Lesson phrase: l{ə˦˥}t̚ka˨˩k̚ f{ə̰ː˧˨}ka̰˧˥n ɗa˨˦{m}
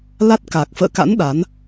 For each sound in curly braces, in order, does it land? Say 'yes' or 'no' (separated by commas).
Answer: no, yes, no